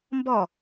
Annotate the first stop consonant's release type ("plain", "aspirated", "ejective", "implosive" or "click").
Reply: plain